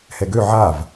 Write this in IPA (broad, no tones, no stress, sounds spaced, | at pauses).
h ɛ ɡ ø ʕ a v